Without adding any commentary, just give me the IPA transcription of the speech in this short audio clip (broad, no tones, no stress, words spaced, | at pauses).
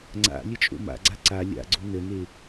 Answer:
ŋ͡ǀa̰ lʲət͡ʃʼo̰ma̰ɡ͡ǀa ǀa lʲa̰ɡ͡ǀo nəne